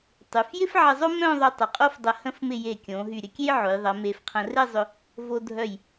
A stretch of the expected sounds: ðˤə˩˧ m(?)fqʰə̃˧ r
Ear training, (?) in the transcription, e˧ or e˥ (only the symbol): e˧